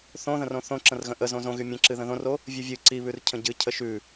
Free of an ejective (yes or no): yes